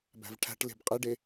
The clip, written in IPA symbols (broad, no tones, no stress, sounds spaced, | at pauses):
b æ̤ v ʈʰ æ̤ ʈ l e̤ b qʼ e ɖ e